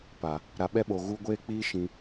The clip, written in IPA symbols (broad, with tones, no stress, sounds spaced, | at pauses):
p a˨ | ɾ a˨ ɓ ɛ˦ ɓ o˨ ɣ u˦ ɡʷ eː˦ k͡p iː˦ ʃ ĩ˦